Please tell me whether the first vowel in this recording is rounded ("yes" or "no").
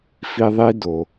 no